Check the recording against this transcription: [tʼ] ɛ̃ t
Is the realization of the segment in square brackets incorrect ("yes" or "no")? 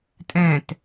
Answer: no